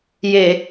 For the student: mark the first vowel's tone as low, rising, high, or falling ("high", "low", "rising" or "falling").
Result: low